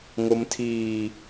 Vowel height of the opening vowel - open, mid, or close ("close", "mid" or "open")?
mid